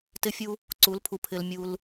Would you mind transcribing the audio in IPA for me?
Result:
t ɪ˦ fʲ u˦ | ǀ u˨˦ l pʰ u˨ pʰ ɪ˦ l mʲ u˦ l

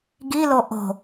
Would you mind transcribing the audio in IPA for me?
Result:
ɡ i l o ʔ o̤

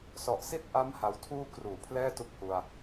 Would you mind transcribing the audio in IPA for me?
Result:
s ɔ˨˩ ʔ s i˥˩ t̚ ʔ a˦˥ m h a˧ w tʰ uː˥˩ k r uː˩˦ pʰ l ɛː˥˩ t u˦˥ k̚ h u˧ a̯

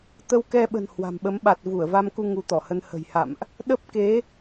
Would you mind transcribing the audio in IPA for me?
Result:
t̪ ə˧ w k ɛ˧ ɓ ə̤˨˩ n h w a̤˨˩ m ɓ ə˨˦ m ɓ a˨˩ t̚ v u˧˩ ə̯ v a˧ m k u˧ ŋ u˨˦ t̪ ɔ˧˩ h ə˧ n h ə̤˨˩ j h a̰˧˨ m ʔ | ɗ ə˦˥ p̚ k e˨˦

